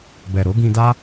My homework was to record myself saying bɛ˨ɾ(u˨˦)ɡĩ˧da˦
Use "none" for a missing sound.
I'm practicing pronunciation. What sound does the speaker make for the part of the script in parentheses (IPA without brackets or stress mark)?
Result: o˨˦